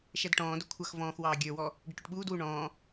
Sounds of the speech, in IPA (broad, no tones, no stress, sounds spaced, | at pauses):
ʃ æ d ʈ ɔ̃ː d ʊ kʷʰ ʌ x v ɔ̃ː x w ɑː ɡʲ ə˞ w ɔ | ɖ ɪ ʈ ʊ ʈ ɓ uː d w u ɳ ɔ̃ː